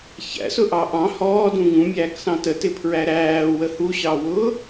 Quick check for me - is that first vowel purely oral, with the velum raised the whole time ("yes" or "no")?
yes